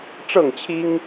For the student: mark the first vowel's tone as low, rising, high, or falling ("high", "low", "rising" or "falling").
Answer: falling